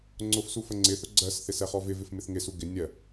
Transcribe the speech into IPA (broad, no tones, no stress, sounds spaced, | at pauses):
ŋ͡ǀ ʊ f s u f ə ŋ͡ǀ ɪ θ ʊ ɡ͡ǀ ɜ s θ ɪ s ɛ χ ɔ v ɪ v ɪ f m ɪ θ ŋ ɪ s u ɡ ɪ nʲ ɜ